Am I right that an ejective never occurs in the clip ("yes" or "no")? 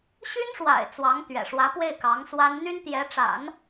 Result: yes